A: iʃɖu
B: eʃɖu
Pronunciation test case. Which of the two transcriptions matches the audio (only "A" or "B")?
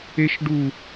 B